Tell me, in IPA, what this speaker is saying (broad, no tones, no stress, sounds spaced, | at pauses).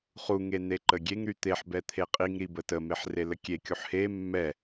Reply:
χ u ŋ e n e ǃ ə ɡʲ e ŋ ɾ y t̪ e ħ b ɛ t̪ʰ e qʼ i ŋ ɾ i b ə t ə m e ħ r e l ə kʲ e kʲ u ħ h e mː ɛ